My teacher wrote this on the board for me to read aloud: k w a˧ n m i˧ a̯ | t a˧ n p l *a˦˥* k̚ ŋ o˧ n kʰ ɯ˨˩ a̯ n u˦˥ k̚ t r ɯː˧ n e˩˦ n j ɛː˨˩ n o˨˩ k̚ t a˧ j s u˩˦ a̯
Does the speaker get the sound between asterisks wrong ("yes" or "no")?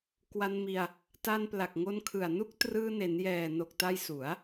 yes